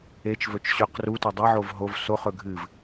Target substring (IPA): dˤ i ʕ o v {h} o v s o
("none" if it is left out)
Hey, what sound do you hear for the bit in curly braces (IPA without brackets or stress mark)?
ɦ